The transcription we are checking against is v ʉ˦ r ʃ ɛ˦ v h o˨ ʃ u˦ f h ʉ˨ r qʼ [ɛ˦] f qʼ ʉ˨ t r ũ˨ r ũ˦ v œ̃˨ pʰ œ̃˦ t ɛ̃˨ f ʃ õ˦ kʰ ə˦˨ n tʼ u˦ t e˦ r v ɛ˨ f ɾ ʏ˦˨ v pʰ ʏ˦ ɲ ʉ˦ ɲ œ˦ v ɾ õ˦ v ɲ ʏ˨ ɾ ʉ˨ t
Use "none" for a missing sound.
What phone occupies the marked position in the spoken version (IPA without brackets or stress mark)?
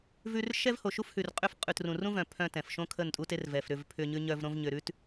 ʏ˦